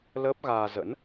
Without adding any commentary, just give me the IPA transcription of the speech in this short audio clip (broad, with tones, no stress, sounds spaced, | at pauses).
l əː˦˥ p̚ ɣ aː˧ z ə̰˧˥ n